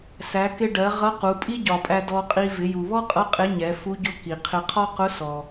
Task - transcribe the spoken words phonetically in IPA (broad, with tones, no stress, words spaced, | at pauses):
sæ˩˧kɪ˧ɖɜ˩˧ ʁʌ˧˥qu˩˧ pʼi˥ɟɒ˩pʼæ˧ dɔ˧qʼi˧ vɪ˩˧ju˩βɔ˥qʼʌ˧˥ qʼɪ˧˥ɲɛ˩˧fu˧˥ɟʊ˧˥ ki˩qʰɪ˧ qʰɒ˥ qʊ˧˥sɔ˩